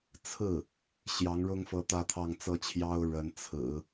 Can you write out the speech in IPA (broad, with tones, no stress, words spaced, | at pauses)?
t͡sʰɹ̩˥˩ | ɕjɑ˧˥ŋɻʊ˥ŋfɤ˧˥ t̪ä˥˧t̪ʰɑ˥˧ŋt͡sɤ˥˩t͡ɕʰjɑ˥ʊ̯ ɻə˧˥nt͡sʰɹ̩˨˩˦